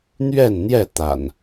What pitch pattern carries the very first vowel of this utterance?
falling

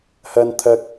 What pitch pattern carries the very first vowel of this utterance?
low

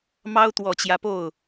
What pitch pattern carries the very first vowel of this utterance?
high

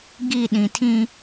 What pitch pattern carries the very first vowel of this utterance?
falling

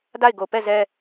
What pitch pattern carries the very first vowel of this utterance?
falling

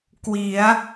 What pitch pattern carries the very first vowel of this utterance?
rising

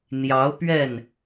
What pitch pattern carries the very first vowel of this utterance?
rising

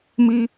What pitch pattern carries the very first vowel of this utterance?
high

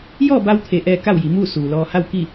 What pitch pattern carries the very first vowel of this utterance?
falling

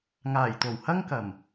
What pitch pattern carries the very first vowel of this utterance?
low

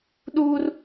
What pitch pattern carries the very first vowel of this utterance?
high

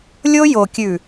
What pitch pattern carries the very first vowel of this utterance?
high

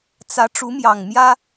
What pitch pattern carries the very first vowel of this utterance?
rising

